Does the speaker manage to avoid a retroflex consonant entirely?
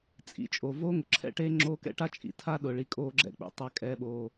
no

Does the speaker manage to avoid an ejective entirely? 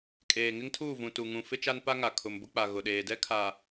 no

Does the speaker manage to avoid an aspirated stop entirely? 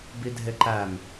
yes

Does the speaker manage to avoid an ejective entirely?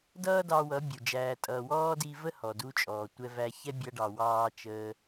no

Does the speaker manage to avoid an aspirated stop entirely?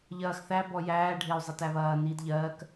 yes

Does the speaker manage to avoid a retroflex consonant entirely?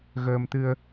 yes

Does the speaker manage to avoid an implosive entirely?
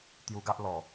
yes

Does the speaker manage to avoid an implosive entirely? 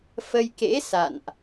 yes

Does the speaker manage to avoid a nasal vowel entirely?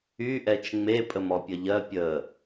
yes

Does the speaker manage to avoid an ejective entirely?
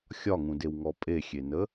no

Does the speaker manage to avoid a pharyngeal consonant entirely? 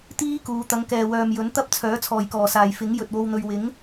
yes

